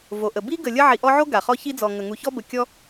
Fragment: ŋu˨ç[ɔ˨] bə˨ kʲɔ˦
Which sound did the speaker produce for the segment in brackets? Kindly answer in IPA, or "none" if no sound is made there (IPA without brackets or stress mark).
ɔ˥